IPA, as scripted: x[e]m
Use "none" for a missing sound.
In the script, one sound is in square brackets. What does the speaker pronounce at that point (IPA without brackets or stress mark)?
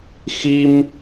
i